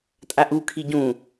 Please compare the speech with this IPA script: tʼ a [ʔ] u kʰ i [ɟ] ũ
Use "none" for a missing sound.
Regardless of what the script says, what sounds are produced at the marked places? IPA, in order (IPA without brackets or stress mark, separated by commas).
ʔ, ɟ